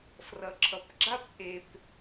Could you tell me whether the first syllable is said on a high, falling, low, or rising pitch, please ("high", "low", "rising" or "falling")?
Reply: low